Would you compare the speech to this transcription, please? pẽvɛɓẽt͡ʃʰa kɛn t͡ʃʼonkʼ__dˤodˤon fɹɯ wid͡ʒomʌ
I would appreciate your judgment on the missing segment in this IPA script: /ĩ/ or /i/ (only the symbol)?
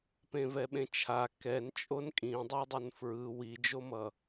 ĩ